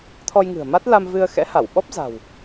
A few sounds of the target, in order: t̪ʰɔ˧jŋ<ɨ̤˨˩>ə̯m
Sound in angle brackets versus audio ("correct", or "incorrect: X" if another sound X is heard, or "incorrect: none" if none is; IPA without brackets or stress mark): correct